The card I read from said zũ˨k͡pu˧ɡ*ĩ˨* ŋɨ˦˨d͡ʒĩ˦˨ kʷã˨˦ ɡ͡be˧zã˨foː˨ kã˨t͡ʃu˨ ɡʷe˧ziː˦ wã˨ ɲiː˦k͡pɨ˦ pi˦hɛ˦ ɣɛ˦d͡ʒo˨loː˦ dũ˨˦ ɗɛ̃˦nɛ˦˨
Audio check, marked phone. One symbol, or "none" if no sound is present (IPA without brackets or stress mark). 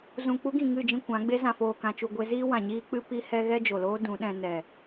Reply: ĩ˨